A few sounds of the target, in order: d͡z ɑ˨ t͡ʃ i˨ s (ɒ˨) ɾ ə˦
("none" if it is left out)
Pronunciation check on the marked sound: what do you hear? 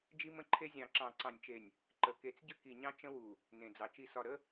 ɒ˨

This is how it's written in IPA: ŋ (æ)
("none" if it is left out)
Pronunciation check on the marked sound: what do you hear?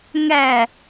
æ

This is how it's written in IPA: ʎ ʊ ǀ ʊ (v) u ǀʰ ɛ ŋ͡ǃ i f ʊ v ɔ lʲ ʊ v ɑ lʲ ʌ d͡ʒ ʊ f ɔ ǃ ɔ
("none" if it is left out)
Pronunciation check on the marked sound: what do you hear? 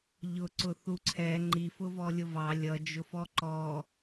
θ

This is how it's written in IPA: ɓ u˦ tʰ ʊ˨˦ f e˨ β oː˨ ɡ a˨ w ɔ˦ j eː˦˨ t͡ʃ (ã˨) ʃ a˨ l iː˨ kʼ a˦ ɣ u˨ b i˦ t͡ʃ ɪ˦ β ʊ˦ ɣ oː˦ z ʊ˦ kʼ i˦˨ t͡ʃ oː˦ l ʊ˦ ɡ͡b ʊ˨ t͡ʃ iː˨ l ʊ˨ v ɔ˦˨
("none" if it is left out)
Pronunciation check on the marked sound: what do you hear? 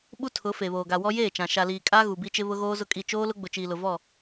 ã˨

